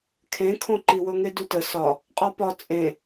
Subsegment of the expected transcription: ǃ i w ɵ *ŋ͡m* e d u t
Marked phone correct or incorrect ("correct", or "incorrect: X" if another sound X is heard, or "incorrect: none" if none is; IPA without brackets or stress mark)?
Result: incorrect: ŋ